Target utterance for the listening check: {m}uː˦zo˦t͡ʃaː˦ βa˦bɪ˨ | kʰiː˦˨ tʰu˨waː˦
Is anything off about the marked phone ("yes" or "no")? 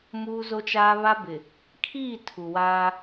no